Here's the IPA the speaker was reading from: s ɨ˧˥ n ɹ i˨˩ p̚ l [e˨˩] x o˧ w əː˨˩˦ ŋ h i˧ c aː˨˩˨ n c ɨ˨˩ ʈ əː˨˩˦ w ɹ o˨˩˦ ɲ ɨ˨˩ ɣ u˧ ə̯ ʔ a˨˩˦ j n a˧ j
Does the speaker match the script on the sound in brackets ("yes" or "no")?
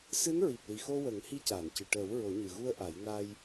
no